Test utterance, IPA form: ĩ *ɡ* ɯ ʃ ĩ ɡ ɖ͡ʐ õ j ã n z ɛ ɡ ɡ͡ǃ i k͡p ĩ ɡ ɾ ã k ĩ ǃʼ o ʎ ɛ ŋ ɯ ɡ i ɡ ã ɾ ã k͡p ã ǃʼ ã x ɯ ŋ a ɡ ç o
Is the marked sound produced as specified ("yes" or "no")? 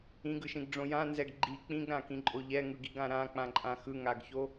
yes